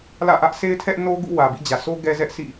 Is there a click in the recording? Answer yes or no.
no